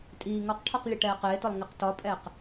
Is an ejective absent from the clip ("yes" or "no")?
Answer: no